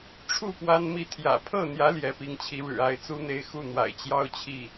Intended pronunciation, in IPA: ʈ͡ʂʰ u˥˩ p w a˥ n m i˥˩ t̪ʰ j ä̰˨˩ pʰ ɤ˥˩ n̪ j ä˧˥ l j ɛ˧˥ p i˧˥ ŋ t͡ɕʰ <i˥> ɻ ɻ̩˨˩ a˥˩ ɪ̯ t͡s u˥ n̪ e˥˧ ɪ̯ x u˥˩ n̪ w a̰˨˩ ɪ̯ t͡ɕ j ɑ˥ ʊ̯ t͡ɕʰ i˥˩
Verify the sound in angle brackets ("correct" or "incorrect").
incorrect